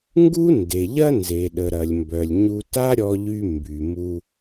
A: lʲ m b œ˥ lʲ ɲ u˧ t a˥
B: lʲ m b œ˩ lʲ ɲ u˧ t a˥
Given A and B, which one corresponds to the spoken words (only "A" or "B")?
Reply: B